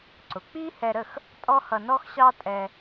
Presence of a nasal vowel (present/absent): absent